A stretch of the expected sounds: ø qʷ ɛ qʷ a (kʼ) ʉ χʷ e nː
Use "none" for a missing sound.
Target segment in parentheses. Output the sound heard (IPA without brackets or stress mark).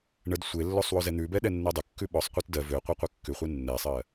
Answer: kː